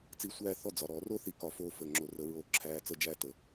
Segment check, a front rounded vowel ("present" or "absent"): absent